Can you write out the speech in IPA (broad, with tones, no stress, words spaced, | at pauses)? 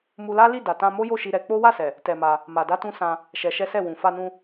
mu˧la˦li˦˨ da˧ tã˧ mo˦jo˦˨ʃi˧ ɾɛ˧k͡po˦ wa˦˨sɛ˨ | tɛ˧ma˧ | ma˧da˦tũ˦ sã˧ | ʃɛ˧ʃɛ˦sɛ˦˨ wũ˨fa˧nũ˧